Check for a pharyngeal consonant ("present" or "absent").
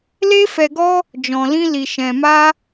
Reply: absent